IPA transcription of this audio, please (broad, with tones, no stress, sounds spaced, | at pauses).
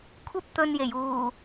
kʷʰ ɐ˥ p̚ t̪ ɵ˧ n j e˨˩ j uː˨˩